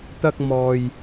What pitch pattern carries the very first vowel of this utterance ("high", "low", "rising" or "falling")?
high